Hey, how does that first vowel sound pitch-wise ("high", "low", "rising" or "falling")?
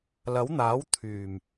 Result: rising